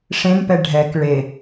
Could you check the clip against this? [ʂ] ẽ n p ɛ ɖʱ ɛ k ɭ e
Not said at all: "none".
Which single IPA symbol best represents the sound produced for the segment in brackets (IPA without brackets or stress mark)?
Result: ʂ